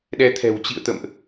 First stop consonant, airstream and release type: implosive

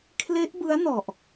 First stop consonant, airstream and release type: aspirated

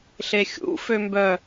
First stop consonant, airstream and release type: plain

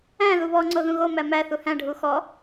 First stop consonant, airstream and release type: click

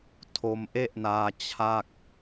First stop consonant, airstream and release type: aspirated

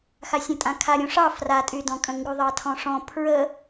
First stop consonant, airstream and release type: ejective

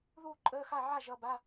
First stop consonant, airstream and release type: click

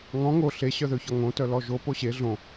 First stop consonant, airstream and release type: plain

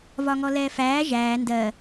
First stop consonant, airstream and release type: plain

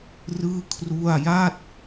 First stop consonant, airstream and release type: aspirated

